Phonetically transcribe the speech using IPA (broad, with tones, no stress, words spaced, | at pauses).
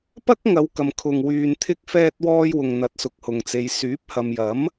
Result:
pɐ˥k̚ŋɐ˨˧wkɐ˨mkʰʊ˨ŋ wyː˨nt̪ʰɪ˧k̚fɛː˧t̚ wɔː˧jwʊ˨ŋn̪ɐ˨˥t̚sʊ˨k̚ hʊ˨ŋt͡se˨˧j syː˨˥p̚hɐ˨mjɐ˨˥m